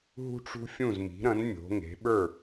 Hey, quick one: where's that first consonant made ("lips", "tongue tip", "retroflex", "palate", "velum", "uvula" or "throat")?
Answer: throat